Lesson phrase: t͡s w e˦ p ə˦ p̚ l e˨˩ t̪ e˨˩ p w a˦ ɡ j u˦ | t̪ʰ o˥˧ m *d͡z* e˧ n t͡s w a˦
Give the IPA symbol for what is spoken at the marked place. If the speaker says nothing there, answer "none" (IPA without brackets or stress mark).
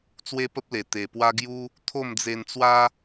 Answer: d͡z